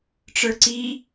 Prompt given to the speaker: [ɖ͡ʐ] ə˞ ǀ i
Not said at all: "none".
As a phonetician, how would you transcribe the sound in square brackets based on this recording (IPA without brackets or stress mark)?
ʈ͡ʂ